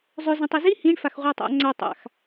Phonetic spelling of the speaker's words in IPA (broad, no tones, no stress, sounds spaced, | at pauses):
zˤ ø z ĩ tˤ i z i h ĩ ɳ f a x ʁʷ a tˤ a̰ ŋ͡ǀ æ tˤ a̰ x